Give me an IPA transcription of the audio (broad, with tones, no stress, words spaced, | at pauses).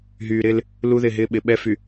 ɦyː˨ɾɪː˦l | lu˦ðɪ˦˨ɦɪː˦ ɓɪ˨ ɓɛ˦fy˨